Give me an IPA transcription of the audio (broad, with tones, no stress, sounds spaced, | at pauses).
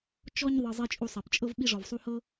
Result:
t͡ʃ ɔ˧ ɲ ðˤ ɤ˨ zˤ i˧ t͡ʃʼ u˧ sˤ ɛ˨ p t͡ʃʼ ɤ˦ v ɓ i˧ ʐ ɔ˨ v sˤ u˧ h ɤ˦